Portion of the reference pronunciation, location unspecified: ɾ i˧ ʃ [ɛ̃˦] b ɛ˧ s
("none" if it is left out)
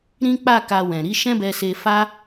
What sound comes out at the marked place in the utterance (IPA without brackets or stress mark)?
ɛ̃˦